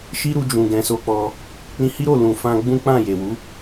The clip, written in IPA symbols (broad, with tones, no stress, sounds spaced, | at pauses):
ʃ i˦ ɾ u˧ d͡ʒ ũ˧ ɡ ɛ̃˧ s o˧ k͡p ɔ˧ | ɾ ĩ˧ h i˦ ɾ o˦˨ l ũ˨ f ã˧ ɡ͡b ũ˦ k͡p ã˦˨ j e˨ w u˨˦